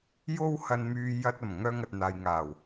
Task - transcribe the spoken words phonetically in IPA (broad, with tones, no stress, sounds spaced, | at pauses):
j o˧ w h ɐ˨ n m yː˨ j ɐ˧ t̚ ɐ˨˩ m ŋ œː˧ ŋ ɐ˨ t̚ n̪ aː˨ j ŋ aː˨˩ w